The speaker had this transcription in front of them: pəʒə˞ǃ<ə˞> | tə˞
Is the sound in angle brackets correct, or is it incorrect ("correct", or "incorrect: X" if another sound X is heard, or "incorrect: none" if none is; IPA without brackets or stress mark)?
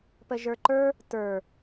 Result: correct